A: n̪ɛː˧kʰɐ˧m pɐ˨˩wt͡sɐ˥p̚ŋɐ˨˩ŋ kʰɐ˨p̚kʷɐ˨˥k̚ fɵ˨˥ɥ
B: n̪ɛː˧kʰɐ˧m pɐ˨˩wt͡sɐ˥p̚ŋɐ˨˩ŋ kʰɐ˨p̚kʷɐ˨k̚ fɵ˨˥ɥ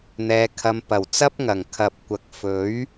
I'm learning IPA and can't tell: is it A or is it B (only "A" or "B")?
B